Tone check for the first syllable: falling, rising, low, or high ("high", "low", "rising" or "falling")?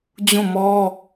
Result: falling